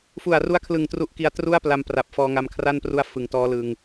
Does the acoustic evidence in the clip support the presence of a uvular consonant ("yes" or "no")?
no